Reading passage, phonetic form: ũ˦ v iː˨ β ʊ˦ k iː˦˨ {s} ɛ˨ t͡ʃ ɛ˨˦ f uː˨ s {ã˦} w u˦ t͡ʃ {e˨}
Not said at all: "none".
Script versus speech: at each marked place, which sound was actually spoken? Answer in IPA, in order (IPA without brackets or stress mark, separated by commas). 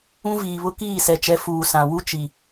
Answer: s, ã˨, i˨